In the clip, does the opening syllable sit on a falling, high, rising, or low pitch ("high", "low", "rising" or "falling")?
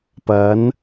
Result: rising